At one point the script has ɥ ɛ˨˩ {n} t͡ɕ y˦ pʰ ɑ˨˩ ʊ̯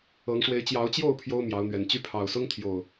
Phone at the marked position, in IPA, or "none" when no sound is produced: n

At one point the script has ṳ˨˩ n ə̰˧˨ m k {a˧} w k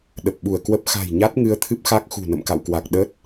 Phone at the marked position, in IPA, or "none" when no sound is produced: a̰˧˨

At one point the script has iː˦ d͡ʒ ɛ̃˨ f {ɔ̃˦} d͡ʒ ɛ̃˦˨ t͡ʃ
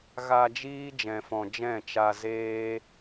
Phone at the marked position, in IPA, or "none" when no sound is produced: ɔ̃˨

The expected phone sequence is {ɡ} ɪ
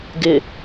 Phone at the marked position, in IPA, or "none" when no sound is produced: ɡ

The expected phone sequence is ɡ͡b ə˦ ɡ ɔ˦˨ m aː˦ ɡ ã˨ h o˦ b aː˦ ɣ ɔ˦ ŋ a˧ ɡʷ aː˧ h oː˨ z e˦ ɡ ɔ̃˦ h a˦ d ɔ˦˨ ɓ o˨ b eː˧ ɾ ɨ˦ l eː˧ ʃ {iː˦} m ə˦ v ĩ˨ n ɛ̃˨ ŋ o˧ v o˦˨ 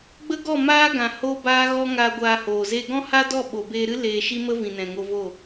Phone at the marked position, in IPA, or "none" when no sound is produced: i˦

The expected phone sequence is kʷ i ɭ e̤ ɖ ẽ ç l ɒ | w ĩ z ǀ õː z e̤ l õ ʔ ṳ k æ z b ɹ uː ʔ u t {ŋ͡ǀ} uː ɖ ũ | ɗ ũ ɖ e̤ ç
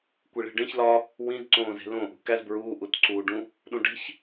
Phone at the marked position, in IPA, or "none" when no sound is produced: ǀ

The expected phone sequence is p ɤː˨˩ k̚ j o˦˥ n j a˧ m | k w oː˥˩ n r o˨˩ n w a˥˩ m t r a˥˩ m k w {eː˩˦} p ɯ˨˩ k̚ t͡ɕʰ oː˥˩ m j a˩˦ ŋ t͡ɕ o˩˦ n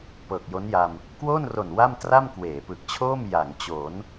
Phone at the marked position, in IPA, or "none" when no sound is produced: eː˩˦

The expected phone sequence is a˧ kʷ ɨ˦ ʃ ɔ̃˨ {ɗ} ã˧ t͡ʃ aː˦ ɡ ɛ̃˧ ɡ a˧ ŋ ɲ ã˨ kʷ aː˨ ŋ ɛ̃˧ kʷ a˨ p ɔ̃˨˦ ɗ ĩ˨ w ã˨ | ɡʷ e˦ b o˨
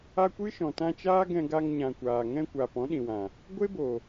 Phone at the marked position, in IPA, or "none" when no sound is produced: t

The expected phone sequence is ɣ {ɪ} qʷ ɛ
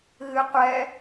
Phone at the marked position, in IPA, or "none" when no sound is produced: ɨ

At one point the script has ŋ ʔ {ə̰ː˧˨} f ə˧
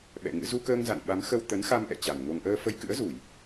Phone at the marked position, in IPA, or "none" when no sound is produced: əː˧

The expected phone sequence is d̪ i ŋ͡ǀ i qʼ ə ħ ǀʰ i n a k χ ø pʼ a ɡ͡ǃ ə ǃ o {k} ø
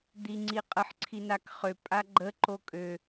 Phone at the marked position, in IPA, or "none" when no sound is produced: kʼ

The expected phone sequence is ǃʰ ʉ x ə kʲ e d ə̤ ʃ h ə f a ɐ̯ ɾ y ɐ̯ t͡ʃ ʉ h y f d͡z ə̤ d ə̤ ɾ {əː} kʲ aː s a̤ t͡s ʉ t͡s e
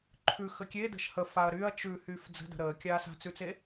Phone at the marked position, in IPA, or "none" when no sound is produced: əː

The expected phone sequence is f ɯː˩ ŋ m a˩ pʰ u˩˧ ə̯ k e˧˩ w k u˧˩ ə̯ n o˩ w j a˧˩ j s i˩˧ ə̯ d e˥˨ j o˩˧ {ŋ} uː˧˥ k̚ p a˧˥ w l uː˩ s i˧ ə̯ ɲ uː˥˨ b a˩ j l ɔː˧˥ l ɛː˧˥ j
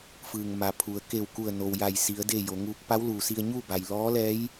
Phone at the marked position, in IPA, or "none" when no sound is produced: ŋ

